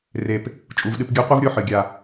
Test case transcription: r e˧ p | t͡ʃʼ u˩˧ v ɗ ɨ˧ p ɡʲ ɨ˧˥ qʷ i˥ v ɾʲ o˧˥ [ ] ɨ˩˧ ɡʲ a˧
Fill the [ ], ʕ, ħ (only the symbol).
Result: ħ